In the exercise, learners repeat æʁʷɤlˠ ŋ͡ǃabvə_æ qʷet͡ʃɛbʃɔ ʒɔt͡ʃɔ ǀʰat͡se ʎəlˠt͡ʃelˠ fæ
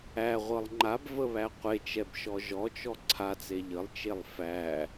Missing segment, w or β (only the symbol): β